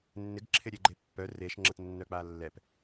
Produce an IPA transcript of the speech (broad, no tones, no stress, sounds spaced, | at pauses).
nː ɪ ɡ ǁʰ ɪ ɾʲ e ɡ͡ǃ e pː œ r e ʃ ŋ͡ǁ ə t nː œ k͡p a lː ɛ p